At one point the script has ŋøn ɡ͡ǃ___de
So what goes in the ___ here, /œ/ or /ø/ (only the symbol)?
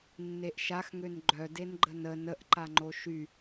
œ